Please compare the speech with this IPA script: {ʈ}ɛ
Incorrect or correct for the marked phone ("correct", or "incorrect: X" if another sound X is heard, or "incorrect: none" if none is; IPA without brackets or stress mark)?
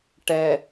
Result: correct